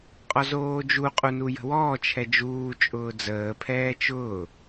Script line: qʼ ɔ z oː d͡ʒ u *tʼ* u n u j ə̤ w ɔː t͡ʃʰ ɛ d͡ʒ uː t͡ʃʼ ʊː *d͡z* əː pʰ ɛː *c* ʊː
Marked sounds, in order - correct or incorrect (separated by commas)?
incorrect, correct, incorrect